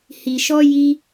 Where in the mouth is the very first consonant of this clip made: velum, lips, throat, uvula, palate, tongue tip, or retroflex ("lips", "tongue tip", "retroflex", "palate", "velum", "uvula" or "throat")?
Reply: throat